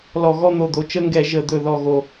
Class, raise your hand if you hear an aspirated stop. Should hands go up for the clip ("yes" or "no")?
no